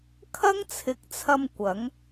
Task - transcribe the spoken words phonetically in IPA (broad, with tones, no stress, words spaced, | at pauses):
kʰɐ˥ŋt͡sʰɪ˨˥k̚t͡sʰɐ˧m kʷɐ˨˥ŋ